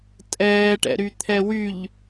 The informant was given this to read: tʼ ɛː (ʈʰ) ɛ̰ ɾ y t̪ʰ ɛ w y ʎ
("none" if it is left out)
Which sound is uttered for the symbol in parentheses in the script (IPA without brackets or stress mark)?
ʈ